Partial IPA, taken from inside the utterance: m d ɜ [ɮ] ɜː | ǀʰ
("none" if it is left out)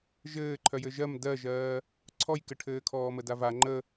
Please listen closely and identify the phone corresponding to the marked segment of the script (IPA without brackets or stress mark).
ʒ